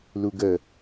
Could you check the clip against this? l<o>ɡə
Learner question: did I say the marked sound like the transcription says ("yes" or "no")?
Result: no